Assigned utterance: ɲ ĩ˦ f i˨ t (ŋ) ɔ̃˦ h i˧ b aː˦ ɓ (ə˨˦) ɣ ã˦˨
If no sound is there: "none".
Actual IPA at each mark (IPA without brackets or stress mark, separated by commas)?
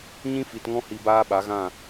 ŋ, a˨˦